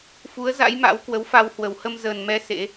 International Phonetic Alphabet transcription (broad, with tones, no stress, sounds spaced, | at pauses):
f u˨˦ ə̯ z a̰˧˥ j m a̰˧˥ w k w ə˨˦ w f a˧ w h w ə˧˩ w h ə˧ m z əː˨˩ n m ɛ˧ s ḛ˧˥